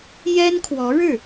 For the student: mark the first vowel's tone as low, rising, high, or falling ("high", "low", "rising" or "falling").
high